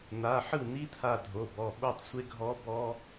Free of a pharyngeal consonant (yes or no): no